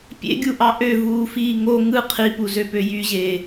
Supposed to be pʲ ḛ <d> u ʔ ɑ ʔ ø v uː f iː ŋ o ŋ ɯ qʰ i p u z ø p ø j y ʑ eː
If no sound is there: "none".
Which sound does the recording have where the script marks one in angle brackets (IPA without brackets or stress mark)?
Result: ɡʲ